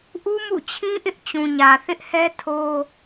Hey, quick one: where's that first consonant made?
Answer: throat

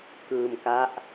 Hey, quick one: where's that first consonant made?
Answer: velum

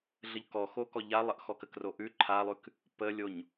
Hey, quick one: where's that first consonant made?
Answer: tongue tip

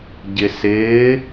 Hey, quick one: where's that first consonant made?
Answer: palate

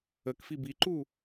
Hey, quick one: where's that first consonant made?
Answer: velum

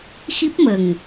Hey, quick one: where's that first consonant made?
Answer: velum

